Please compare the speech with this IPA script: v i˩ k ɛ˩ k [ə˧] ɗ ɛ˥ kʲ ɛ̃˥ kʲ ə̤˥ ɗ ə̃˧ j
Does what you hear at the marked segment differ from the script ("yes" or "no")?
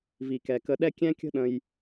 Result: no